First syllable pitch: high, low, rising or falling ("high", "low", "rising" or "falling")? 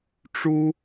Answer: high